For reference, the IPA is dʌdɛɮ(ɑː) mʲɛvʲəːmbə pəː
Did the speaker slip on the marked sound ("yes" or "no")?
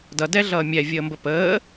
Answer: yes